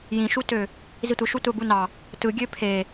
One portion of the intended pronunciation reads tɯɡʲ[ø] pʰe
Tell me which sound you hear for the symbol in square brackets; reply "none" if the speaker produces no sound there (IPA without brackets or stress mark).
ø